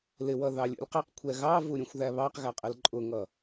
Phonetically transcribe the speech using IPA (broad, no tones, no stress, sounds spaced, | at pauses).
l ɪ w ʌ ð ɑ lʲ ṵ lʲ q i q kʷʰ ɛ ɣ ɑ v u ɾʲ ũ xʷ ð æ β ɑ q ɣ æ qʼ ɪ l ǃʼ ʊ ŋ ʌ